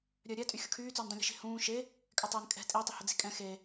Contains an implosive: no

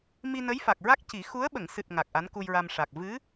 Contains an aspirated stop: no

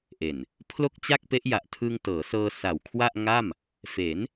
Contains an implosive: no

